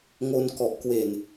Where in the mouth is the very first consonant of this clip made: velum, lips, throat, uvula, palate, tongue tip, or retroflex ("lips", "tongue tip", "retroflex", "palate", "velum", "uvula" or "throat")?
velum